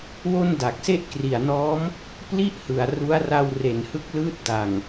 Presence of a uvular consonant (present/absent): absent